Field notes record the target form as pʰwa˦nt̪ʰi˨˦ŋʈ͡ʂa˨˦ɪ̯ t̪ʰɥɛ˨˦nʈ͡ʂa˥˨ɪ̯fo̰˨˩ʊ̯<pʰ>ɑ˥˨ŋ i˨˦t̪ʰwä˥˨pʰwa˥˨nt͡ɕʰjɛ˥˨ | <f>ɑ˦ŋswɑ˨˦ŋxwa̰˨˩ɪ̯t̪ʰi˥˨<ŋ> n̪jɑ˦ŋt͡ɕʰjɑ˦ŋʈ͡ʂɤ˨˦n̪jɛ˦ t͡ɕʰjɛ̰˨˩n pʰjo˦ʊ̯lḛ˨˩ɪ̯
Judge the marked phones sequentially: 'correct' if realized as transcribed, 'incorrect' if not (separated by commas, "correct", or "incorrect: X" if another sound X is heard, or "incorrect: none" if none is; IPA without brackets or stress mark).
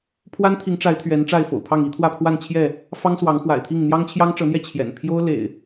correct, correct, correct